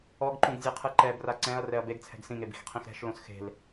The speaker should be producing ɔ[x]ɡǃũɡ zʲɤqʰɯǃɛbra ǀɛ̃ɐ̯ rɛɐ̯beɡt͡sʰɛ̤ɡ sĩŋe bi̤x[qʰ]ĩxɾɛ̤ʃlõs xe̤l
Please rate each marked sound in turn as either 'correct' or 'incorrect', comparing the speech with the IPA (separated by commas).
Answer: incorrect, correct